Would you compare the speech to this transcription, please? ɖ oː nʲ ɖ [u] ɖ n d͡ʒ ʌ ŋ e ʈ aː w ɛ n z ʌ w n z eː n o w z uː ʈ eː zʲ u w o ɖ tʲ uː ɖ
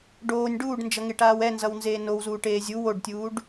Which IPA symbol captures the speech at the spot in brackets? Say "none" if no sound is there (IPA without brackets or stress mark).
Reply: uː